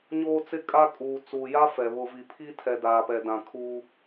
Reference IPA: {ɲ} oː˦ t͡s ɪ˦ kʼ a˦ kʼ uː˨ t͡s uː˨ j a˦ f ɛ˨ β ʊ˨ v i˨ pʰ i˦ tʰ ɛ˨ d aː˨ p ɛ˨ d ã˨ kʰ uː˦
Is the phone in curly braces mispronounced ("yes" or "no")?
no